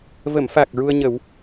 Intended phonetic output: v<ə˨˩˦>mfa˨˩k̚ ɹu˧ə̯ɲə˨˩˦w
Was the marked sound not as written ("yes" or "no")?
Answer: yes